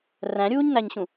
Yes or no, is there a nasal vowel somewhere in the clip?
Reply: yes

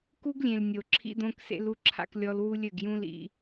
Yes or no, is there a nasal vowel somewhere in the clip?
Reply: yes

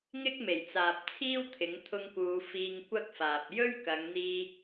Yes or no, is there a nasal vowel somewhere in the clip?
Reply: no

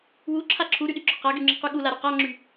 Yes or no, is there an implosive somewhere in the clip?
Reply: yes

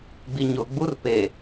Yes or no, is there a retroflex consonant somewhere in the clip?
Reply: no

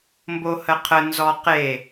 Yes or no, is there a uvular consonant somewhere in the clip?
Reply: yes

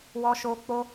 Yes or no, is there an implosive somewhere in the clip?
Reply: no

